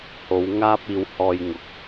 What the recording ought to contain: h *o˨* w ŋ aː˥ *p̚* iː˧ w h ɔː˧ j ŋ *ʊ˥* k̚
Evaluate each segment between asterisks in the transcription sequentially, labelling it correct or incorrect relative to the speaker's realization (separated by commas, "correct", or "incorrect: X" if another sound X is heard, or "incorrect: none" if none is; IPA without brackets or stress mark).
incorrect: o˨˧, correct, incorrect: ʊ˨˥